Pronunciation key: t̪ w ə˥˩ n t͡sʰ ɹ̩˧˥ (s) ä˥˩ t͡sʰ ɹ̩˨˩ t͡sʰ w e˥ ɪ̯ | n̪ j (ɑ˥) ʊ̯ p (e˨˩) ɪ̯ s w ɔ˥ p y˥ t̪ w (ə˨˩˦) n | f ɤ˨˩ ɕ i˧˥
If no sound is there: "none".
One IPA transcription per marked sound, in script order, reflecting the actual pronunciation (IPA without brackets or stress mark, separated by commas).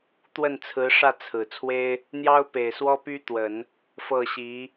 ʂ, ɑ˥, e˨˩, ə˨˩˦